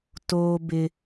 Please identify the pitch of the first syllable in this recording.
high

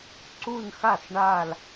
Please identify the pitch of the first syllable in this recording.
falling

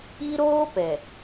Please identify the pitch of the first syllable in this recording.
high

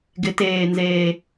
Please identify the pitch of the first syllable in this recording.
rising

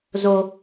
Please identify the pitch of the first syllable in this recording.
low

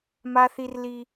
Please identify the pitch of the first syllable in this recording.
high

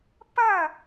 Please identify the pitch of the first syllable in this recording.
falling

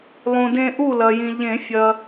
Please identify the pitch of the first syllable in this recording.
low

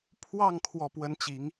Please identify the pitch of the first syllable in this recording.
falling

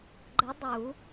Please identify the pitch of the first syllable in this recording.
rising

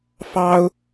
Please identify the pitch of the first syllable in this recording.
high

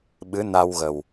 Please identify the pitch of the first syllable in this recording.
rising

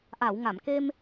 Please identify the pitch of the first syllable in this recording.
low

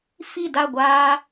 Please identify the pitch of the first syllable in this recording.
falling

